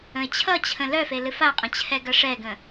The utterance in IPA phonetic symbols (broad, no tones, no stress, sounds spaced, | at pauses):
ə̃ ɪ̯ t͡ɕʰ ʌ t͡ɕʰ ə̃ l œ f e l ɨ f a qʼ ə̃ t͡ɕʰ ɛ ɡ ʌ ʂ ɛ ɡ ə̃